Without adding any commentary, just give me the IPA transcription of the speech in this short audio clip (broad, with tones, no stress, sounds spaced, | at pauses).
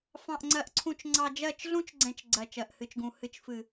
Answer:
f ɑ̃˨ ʔ ŋ͡ǀ ɜ˨ ʔ ǀʰ ũ˨ t͡ʃ ŋ͡ǀ ɑ˨ d͡ʒ ɜ˦˨ t͡ʃ ɮ ũ˦ t͡ʃ ɡ͡ǀ ɛ̃˨ t͡ʃ ɡ͡ǀ ɜ˨ t͡ʃ ɜ˨ ʔ h ɨ˨ t͡ʃ ɡ ũ˨ h ɨ˨ t͡ʃ f ɨ˨